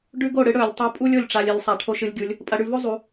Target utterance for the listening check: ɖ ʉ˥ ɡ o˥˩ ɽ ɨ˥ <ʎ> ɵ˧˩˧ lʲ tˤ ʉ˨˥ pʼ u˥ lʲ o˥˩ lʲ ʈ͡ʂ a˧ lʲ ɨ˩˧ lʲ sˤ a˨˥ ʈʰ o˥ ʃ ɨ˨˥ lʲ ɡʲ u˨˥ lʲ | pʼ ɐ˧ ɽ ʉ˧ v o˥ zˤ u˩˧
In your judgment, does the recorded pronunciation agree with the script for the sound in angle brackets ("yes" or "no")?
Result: no